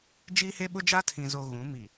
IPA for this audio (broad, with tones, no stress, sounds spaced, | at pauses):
d͡ʒ iː˦ h e˦ ɓ ʊ˦ d͡ʒ aː˦ tʰ ĩ˨ z oː˨ ɣ ũ˨˦ m i˨